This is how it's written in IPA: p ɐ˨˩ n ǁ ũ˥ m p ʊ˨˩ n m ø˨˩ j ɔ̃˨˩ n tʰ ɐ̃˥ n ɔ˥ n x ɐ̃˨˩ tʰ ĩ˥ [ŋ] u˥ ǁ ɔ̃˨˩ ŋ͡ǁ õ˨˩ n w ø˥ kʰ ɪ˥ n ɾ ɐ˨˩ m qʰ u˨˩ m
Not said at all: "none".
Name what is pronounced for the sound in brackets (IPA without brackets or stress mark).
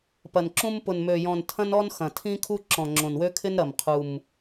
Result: kʰ